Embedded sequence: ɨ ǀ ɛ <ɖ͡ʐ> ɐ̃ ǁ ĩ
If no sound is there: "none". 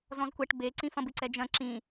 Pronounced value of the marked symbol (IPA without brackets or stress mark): d͡ʒ